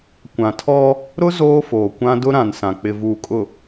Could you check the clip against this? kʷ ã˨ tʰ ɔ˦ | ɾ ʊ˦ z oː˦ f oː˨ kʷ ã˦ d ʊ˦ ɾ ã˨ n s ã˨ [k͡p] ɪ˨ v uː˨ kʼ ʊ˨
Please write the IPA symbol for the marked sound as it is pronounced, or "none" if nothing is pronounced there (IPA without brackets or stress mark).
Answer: k͡p